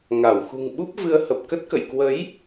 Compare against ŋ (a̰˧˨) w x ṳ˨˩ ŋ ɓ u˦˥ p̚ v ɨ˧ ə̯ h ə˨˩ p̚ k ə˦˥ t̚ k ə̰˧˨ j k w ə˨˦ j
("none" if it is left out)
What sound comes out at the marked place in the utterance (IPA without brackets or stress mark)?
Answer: a˧˩